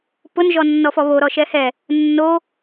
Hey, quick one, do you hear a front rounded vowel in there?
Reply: no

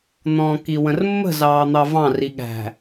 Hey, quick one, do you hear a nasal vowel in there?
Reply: yes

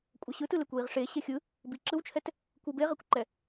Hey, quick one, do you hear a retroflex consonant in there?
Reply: yes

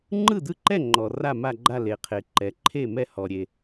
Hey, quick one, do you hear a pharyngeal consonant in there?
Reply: no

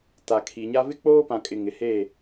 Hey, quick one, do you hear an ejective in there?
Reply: yes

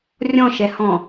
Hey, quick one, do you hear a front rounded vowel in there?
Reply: no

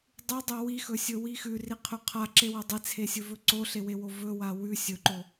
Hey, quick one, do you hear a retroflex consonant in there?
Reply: no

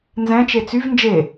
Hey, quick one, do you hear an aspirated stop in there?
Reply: no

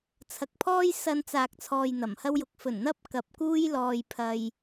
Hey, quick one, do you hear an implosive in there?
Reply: no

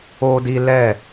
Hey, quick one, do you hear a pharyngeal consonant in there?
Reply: no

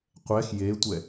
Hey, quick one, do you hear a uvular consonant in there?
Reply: yes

